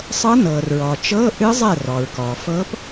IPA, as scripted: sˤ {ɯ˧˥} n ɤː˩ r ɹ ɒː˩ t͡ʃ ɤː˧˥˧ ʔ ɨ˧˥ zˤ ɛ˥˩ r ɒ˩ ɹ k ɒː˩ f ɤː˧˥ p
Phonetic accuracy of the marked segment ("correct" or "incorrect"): incorrect